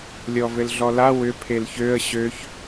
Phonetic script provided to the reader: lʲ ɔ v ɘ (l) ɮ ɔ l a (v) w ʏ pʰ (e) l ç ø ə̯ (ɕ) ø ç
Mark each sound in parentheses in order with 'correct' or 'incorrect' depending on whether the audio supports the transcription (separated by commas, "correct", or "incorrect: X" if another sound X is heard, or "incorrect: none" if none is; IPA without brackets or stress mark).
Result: correct, incorrect: none, correct, correct